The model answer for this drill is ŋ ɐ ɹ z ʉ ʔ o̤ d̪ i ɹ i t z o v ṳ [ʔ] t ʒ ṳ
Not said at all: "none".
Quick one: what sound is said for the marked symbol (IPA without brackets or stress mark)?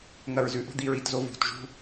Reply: none